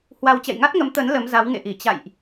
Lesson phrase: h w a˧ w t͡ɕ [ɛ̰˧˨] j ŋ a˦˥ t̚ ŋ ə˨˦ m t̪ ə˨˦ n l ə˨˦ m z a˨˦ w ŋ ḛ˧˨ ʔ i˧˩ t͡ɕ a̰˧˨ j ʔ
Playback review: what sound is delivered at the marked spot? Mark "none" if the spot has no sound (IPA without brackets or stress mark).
ɛ̰˧˨